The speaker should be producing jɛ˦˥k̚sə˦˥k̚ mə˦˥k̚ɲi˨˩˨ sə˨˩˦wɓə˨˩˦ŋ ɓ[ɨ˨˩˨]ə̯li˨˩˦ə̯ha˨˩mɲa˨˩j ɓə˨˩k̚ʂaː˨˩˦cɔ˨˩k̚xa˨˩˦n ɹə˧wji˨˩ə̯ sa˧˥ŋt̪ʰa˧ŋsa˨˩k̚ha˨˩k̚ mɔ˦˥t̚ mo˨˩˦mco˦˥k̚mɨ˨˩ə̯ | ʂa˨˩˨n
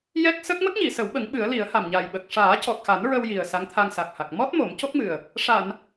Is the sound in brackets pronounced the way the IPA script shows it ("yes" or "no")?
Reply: no